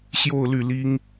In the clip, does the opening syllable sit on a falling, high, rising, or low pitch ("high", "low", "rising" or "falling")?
falling